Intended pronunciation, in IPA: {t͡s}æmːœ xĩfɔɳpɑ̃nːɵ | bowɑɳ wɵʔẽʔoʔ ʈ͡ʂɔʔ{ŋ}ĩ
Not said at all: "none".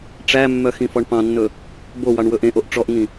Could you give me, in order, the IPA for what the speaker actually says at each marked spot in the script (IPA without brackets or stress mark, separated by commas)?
ʈ͡ʂ, ŋ